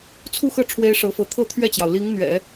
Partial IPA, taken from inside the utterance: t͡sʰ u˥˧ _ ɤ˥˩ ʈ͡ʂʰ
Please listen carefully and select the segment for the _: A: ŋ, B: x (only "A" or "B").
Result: B